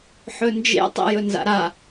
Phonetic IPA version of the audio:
ħ ɵ n d͡ʒ ḛ tˤ ḛ j ɵ n z a̰ ɾ a

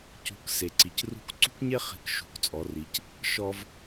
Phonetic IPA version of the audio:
c ṳ˩˧ k s e˩ ǀ i˩ c r ṳ˧˥ k ǀ ṳ˥ k ɲ e˥ χ i̤˧ k ʃ ṳ˩˧ k t͡sʼ ɔ˩˧ r i˩˧ c | ʃ ɔ˧ v

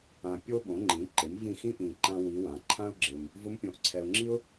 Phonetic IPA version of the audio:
ã˨ pʲ o˥ ɓ õ˩˥ ŋ͡ǃ ĩ˩˥ ǃ ɪ˩˥ m v ĩ˦˨ x ĩ˥ ʔ ĩ˨ ǃ ã˥ w i˧˥ w ã˩˥ ǃʰ ã˥ ʊ̯ ɡ͡ǁ ɪ˨ m | v ʊ˧˥ m pʲ õ˩˥ ʔ ǀʰ ɛ˨ ʊ̯ ŋ͡ǁ i˥ ʊ̯

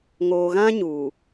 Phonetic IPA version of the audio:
ŋ oː˨ ɣ ã˦ ɲ uː˨

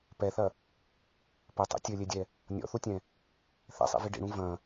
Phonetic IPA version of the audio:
p ɛ θ ɐ | p ɘ tˤ ḭ tʲ ɘ lʲ e dʲ ɛ | nʲ ɔ̰ θ u tʲ ɛ̃ | θ ɛ̰ sˤ ḭ v i ɖ ḭ ɽ ũ v ɐ̃

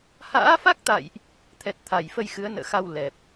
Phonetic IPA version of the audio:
h a̰ː˧˥ f a˦˥ k̚ t̪ a̰˧˨ j ʔ | t̪ʰ ɛ˨˩ t̚ t̪ʰ a˧˩ j f ə˧ j x ɨ˨˦ ə̯ n ə̰ː˧˨ x a˧ w l ɛ˨˩ p̚

